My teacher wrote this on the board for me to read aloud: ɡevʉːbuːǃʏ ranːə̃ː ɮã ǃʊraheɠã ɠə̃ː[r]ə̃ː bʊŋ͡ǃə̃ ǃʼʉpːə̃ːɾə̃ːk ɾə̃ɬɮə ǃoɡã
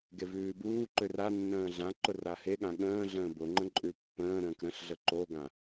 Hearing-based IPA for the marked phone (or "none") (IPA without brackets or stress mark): ɮ